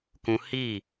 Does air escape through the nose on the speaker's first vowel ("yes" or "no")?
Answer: yes